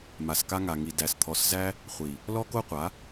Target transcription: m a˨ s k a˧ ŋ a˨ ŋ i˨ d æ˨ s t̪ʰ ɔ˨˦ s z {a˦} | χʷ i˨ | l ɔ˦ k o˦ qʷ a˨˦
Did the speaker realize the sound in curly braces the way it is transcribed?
no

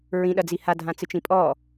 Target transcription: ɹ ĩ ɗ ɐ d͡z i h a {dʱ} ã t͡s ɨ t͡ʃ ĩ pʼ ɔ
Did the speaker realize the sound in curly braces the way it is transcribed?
yes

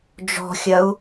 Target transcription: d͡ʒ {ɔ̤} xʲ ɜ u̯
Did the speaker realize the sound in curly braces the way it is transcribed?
yes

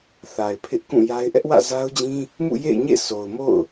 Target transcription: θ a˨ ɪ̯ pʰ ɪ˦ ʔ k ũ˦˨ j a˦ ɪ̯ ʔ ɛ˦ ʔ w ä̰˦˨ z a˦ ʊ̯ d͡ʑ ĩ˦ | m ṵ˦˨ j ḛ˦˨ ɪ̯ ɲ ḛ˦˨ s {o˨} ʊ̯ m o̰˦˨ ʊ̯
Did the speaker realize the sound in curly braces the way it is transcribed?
yes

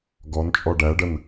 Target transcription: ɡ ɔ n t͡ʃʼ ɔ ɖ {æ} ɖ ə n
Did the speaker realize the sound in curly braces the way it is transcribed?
yes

